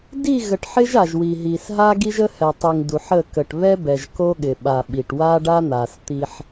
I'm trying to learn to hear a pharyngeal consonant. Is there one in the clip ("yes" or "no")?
yes